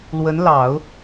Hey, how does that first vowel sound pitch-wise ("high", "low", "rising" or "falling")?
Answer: rising